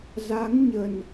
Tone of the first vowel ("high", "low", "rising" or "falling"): rising